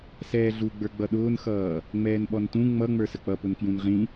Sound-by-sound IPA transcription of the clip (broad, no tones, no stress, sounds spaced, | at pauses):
s ɛː ɮ u ɡ͡b ə˞ ɡ͡b ʌ ɗ ʊː n x ʌː | ŋ͡m ɛː n ɓ ɔ n t ũ ŋ͡m ʌ ŋ͡m ə˞ s ə k͡p ʌ p ʊ n k j ũ n ʁ ĩ